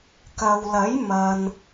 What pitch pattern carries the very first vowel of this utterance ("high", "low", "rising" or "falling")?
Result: low